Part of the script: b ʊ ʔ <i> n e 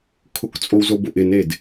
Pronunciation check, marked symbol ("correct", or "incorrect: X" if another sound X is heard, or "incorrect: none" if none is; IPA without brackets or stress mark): incorrect: ɪ